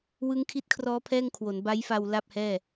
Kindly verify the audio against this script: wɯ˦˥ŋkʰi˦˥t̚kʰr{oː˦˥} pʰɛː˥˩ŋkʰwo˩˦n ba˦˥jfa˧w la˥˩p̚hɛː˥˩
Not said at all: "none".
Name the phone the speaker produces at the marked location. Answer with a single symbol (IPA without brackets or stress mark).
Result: ɔː˦˥